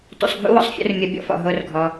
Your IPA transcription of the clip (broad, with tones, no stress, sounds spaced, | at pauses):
t ṵ˨ sˤ ɡʱ ṵ˦ w ɔ̰˦ sˤ fʲ ṵ˧ r mʲ ɐ˧ bʲ ɔ̰˦˨ f ɔ̰˨ ɦ o˦ r ɡʱ ɔ˧